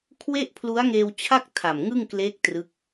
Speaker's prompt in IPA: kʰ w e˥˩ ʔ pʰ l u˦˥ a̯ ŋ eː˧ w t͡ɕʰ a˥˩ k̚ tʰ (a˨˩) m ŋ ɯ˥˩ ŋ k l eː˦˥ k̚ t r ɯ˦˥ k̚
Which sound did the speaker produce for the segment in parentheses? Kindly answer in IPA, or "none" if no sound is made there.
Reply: a˨˩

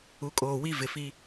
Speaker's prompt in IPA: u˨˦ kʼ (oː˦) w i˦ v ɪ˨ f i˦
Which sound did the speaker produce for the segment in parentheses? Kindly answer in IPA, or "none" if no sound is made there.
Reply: oː˨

